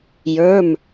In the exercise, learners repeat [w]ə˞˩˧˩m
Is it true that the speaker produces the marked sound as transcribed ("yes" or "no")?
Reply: no